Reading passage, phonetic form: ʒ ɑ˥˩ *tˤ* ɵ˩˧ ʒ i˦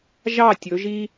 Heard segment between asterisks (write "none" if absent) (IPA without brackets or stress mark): tʲ